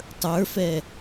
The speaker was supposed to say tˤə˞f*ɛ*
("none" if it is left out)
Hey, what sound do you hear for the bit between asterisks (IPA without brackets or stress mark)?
ɛ